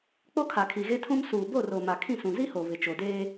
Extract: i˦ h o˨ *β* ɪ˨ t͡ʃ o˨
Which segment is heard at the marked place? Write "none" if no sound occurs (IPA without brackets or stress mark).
β